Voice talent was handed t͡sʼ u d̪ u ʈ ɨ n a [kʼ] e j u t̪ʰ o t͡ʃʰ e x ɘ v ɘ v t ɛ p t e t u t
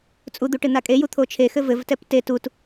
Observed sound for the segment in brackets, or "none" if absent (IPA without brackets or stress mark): kʼ